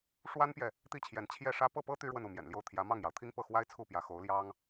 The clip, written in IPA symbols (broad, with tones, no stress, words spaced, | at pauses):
ʂwa˥npjɛ˨ | t̪i˥˩t͡ɕʰjɛ˧˥n t͡ɕʰjɛ˥˩ʂä˥ pɤ˥˩pɤ˥ t̪y˥ɻwə˥˧n u˥˩mjɛ̰˨˩nljo˥˩ʊ̯ t̪ʰjä˧˥mɑ˥˩ŋjɑ˩ʊ̯t̪ʰi˥ŋ pɤ˥˩xwa˥ɪ̯t͡sʰu˥˩pjä˧˥ xo˧˥ʊ̯ljɑ˥ŋ